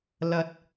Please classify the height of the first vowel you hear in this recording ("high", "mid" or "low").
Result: low